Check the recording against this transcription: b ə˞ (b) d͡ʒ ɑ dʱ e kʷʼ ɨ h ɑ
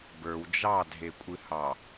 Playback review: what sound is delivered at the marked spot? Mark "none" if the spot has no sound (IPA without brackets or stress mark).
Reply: w